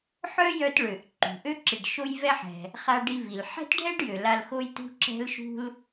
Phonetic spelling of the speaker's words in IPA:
ħ œ˥ j œ˦ t ɭ ø˨ ʔ ǃ ṳ˩ ʔ ø˥ ǁ i˨ ɖ ʃ o˦ j v ɛ˦ ħ ɛ̤˨ | χ a˦ ɖ i˦ v i˨ l ħ ɛ̤˥ t ɖʱ ɛ˥ ɖ j ø˨ l a˦ l x o˥ j t ṳ˦ ǁ ɛ̤˦ l ʃ ṳ˦ l

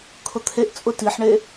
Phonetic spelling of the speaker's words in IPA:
kʰ ʊ t̪ʰ e ʔ t͡sʼ ʊ t i ħ ɳ e

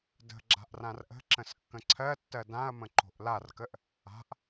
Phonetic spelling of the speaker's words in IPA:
d ə̤ ɡ͡ǁ a̤ ʔ r ã r ʔ ə̤ ǁ ə̃ s kː ə̃ ǀʰ ɜ tː ɜ d ã ɐ̯ m ə̃ ǃ o̤ ʔ l a r k ə ʔ | a̤ ʔ

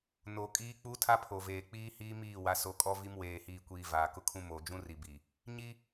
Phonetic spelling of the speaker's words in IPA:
n o˨ kʼ iː˦ k͡p uː˦ tʰ a˦ pʰ o˨ v eː˨ k͡p iː˦ h iː˦ m iː˦˨ w a˨ s o˨ kʼ ɔ˦ v i˦ m w eː˨ h iː˨ kʷ iː˨ v aː˨ k ʊ˦ kʰ ũ˦ m oː˨ d͡ʒ ũ˦ r i˨ b i˨ | ɲ i˦

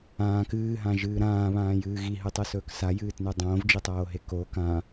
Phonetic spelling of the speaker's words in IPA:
ãː k ɨː ɦ ã ʒ ɨː ɾ ãː β ãː j ɨː ɣ i ɦ ɨ tˤ ɨ s ɵː k s a j ɨː t n ʉ dˤ õː v d͡ʒ i tˤ oː ɦ e k o k ã

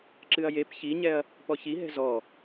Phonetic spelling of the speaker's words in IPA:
ǁ ɨ ɐ̯ j e p ç i ɲ ɛ ɐ̯ | p ɔ ç i ɦ ɛ̤ z ɔ

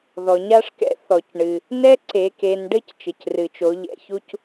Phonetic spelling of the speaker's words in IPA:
ð ɔ˩ ɲ a˥ ʂ k ɛ̰˧˥ θ ɔ˩ c ɳ ɨ˩ | n ɛ˥ ǀ e˩˧ k e˩˧ n ɖ ɘ˥ c t͡ʃ ɘ˩ c r ɨ˩ t͡ʃ o˩˧ ʎ ɛ̰˧ ç u˥ c

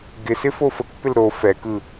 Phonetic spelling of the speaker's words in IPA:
ɡ ɪ s ɪ f o f ə k p ɪ l ɾ o f ɛ k ɯ

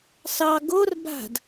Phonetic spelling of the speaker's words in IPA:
s ɑ ɡ o r b a̤ d

